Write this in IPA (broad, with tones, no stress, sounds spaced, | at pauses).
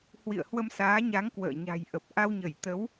h w ḭ˧˨ ə̯ h w ə˧ m s aː˨˦ ɲ a˨˦ ŋ k w ə̰ː˧˨ ɲ a̤˨˩ j ʔ ə˨˩ p̚ ʔ a˧ w ɲ ə˧˩ j t̪ ə˨˦ w